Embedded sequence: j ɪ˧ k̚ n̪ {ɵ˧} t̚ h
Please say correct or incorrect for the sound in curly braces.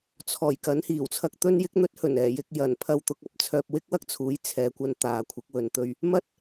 incorrect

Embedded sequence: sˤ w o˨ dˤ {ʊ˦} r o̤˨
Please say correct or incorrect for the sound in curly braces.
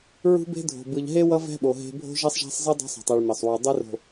incorrect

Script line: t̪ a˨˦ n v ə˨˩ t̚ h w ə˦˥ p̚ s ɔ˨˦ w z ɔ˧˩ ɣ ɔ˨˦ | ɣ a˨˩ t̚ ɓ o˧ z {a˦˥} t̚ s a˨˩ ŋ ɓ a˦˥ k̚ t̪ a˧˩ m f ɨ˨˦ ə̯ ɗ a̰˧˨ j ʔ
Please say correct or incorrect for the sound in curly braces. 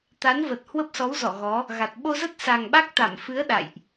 incorrect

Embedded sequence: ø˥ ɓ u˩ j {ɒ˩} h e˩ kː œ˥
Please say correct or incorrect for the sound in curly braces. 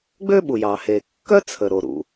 incorrect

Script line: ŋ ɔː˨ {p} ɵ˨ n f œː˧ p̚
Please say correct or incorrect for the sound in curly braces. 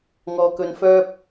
incorrect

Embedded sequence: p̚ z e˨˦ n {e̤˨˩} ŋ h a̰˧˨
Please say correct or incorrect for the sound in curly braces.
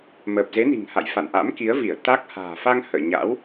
incorrect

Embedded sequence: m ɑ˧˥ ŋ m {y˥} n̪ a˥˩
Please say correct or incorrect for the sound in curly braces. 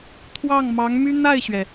correct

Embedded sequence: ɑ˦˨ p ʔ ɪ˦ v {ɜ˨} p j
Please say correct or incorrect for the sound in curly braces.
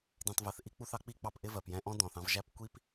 correct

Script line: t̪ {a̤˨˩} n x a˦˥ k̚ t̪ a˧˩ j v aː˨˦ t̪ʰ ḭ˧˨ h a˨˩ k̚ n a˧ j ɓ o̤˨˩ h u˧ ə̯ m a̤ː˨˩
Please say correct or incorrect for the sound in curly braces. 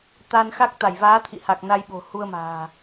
incorrect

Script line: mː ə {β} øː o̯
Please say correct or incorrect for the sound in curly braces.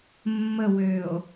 incorrect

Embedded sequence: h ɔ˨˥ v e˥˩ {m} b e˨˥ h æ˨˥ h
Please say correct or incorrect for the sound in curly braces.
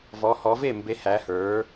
correct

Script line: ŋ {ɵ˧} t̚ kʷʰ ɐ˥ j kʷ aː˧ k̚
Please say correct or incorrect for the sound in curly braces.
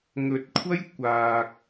correct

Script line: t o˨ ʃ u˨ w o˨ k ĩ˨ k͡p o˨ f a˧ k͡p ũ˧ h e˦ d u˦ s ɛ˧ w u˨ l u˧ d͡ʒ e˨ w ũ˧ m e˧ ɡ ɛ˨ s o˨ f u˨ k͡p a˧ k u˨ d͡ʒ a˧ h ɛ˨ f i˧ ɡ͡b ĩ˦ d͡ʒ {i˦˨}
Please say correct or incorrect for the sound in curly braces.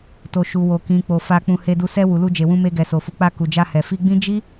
incorrect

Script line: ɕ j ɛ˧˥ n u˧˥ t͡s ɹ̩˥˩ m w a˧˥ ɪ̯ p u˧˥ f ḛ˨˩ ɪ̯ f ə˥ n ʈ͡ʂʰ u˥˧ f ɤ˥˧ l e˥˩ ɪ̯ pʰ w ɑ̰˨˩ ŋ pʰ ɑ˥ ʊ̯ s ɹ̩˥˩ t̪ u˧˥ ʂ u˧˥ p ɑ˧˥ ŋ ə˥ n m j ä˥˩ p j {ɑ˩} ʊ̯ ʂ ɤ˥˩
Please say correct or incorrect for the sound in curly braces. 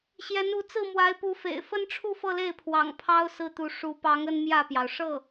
correct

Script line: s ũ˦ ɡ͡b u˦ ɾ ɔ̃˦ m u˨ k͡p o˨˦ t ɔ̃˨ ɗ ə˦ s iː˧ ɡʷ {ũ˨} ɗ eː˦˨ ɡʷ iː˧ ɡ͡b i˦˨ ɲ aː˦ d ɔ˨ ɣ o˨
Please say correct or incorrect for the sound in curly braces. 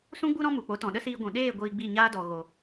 correct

